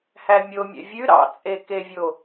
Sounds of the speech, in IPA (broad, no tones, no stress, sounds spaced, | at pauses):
h æ mʲ o mʲ ɛ̰ vʲ ʉ ɾ ɑ̰ t͡sʼ e k e vʲ o